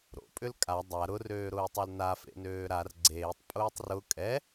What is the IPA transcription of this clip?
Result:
ɾ o̰ pʼ ʏ l kʼ a dˤ a ɾ ʊ r øː ɾ ʊː tˤ œ l n a f ḛ n øː ɾ a r ɡ͡ǀ eː tˤ pʼ ʊː tˤ r ʊ kʼ ɛ

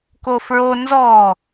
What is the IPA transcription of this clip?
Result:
k o f ɹ o n z ɔ

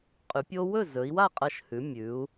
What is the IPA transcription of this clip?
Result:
qʼ ʉ˩˧ pʲ o˦ w ɵ˥˩ z ɵ˩˧ i̯ w a˥˩ qʼ ɐ˧˩ ʃ h ʉ˩˧ mʲ ʉ˩˧ u̯

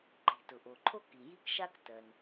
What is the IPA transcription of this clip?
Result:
ǃ i̤˩ t ʊ˩ ʔ o˩ ǃʰ o˥ k i˩ j i˥ k ʃ a˥ k t ɜ˩ n

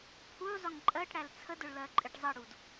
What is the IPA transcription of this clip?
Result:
pʰ u zˤ ʊ ŋ ǃʼ ɜ ʈ ɽ æ l t͡sʰ ə d ʊ ɭ l ɜ ǃʼ ɪ ʈ zˤ ʌ ɽ u d

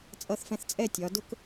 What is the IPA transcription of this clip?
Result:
t͡sʼ ʌ˧ θ f ɛ̃˧ θ t͡sʼ ɛ˥˧ tʲ ɒ˩˧ d ʊ˥ k

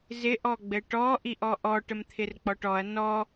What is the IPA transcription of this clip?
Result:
z ɪ ʔ ɔ ɡ͡b ɘ ʈ ɔ ʔ i ʔ ɔ ʔ ɔ ʈ ə m t̪ʰ ɪ r k͡p ɔ ʈ ɔ ɐ̯ n ɔ

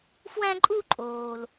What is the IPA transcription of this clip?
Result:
f w æ̃˥ ǃʼ u˥ ǃʼ oː˨ l

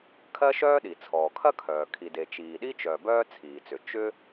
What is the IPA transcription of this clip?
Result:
kʰ ɜ˥ ʃ œː˥ ɗ i˩ t͡sʰ ɔː˩ kʰ ɐ˥ kʰ œː˩ kʰ i˩ d e˩ t͡ʃ iː˩ ɗ i˥ t͡ʃ œ˩ b œː˥ t͡sʰ iː˩ t͡s ʏ˩ t͡ʃ ʏ˥

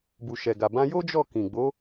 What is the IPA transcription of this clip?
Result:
b u˨ ʃ ɛ˨ ɡ a˨ b ã˧ j o˦ d͡ʒ ɔ˦˨ k ĩ˨ ɡ͡b o˨˦

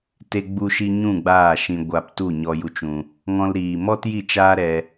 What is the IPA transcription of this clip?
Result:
t e˧ ɡ͡b u˧ ʃ i˧ ɲ ũ˦˨ ɡ͡b aː˦˨ ʃ ĩ˧ ɡʷ a˧ p t u˦˨ ɲ ɔ˧ j u˧ t͡ʃ ũ˧ | ŋ ɔ̃˧ l ɾ iː˨ m ɔ˦ t j i˦˨ t͡ʃ aː˦ ɾ ɛ˧

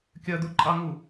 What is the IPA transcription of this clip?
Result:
kʲ ɜ d̪ u ǃʼ ɑ ŋ u

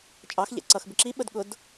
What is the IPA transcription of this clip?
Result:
t͡ʃʼ ɑ x ʎ ɛ̰ ǀ ʌ x b ɪ ǁ i ɓ ə d ɠ ʊ d

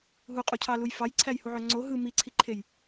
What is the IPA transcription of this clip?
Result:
ɦ u qʼ u cʰ ɑ l u j f ɑ j ǀʰ æ j h u ʕ ø ŋ͡ǀ o ɦ ɯ m i ǀʰ i ǃʰ e j

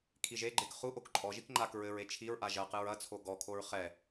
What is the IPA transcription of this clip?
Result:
kʰ i ʒ e ɡ͡ǃ e k χ u ʔ o k ǃʼ ɔ ʒ i k ŋ͡ǃ a k ɹ ɘ ɹ e t͡ʃʰ i ɹ ʔ a ʒ ɐ q ɨ ɹ ɐ t͡sʰ o ɡ ɔ kʰ o ɹ χ ɛ

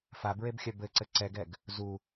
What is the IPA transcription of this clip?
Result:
f a b ɹ e b xʲ œ b ɘ ǀ ɘ ǀ ɛ ɡ ɛ ɡ | z u

